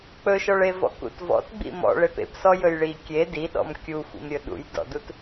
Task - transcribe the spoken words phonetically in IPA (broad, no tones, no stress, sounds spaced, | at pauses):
k͡p ɵ ʃ ɔ ɭ e v ɔ̰ k ṵ t v ɔ̰ t ɡ͡b ḭ m ɔ̰ ɭ e p ḛ p s ɔ j ɵ j ɭ i kʲ e d i ɗ ɔ̰ m kʲ u xʷ ḭ m ɾʲ ɵ ɗ ṵ j d ɔ̰ d u t